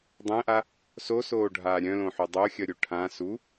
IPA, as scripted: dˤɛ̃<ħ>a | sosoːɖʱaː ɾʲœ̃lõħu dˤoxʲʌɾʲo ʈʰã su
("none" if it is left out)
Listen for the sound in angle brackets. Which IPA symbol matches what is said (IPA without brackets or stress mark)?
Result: ʔ